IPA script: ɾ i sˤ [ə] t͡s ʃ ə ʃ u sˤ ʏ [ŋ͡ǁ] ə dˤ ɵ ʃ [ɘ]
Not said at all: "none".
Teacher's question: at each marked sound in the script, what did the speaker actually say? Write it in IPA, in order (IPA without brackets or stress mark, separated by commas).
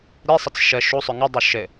ə, ŋ, ɘ